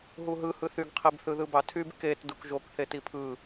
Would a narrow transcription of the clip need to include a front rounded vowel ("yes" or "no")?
yes